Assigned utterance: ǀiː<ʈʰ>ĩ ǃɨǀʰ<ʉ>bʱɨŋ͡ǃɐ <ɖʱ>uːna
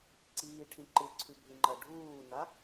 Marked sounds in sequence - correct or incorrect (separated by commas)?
correct, correct, correct